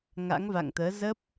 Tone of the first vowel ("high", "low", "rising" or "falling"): rising